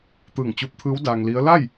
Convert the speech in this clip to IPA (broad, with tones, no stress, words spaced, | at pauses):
t̪ɯː˧˩ŋt͡ɕu˧p̚t̪ʰɯː˧˥w daː˧ŋli˧˥ə̯ la˥˨j